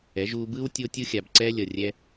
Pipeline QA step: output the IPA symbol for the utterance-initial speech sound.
ɛ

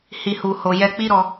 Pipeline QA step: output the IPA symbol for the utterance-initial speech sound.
h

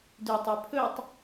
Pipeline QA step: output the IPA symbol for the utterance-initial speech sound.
d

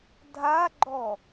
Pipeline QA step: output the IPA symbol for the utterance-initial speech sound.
dʱ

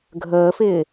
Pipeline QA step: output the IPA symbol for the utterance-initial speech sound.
ɡʱ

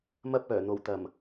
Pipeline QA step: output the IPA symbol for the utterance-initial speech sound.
m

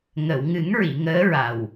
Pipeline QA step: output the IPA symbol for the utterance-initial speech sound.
ŋ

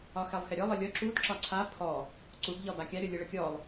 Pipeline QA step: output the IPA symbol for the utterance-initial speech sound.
ɒ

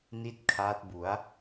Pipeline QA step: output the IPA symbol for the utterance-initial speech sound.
n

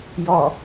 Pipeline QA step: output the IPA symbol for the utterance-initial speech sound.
j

